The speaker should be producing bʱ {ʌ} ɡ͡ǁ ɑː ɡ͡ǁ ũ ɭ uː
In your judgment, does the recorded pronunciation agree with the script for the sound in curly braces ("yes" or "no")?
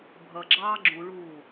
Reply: yes